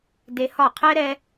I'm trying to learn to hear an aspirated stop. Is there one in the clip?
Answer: yes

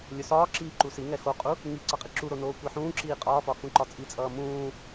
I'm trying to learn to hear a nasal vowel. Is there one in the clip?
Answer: yes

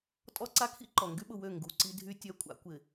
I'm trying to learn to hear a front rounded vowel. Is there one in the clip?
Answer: yes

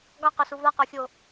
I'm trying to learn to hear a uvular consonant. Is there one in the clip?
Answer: yes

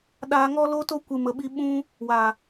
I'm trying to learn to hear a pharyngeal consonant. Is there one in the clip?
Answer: no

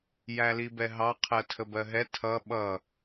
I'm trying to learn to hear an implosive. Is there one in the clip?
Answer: yes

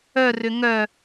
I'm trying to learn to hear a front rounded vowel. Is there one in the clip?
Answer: yes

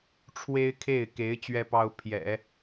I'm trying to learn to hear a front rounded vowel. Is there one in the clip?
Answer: no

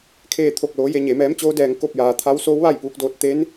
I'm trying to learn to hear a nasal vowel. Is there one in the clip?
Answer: no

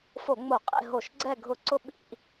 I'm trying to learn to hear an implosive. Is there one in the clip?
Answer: yes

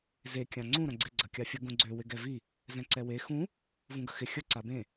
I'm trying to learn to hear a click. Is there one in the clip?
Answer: yes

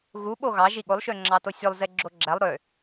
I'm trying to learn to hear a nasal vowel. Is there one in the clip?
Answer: no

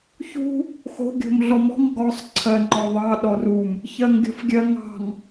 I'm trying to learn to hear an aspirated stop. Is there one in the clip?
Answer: yes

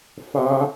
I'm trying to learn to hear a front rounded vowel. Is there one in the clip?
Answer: no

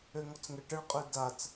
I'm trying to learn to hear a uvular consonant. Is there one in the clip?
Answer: yes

